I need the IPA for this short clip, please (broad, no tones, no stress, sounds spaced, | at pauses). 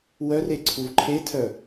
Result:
w œ r e ǀʰ u v ǃʰ e tʰ œ